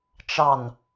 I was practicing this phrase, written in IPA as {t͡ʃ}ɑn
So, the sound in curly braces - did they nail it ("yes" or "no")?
yes